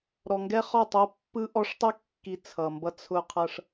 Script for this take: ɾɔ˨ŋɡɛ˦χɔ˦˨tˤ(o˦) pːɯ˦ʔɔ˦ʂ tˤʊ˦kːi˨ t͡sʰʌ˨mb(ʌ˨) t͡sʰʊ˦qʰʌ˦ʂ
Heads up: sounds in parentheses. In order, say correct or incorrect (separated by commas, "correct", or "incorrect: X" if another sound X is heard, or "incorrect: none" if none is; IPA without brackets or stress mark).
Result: correct, incorrect: ʌ˦